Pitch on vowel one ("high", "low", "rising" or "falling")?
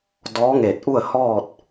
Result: rising